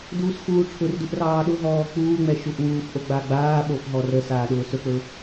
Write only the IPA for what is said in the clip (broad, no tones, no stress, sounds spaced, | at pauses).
d uː s x uː ʈ͡ʂʰ ʊ r d u ʔ r ɑː ɗ ʊ ɦ ɔː k͡p uː ŋ͡m ɛ ʃ u ʔ w uː f ʔ o ɡ͡b a ɡ͡b aː ɓ o f ɦ ɔ r ə s aː ɗ ʊː s ɵ k͡p ɵ